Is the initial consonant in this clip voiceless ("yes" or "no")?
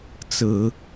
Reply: yes